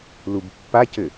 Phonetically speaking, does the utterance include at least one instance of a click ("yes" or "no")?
no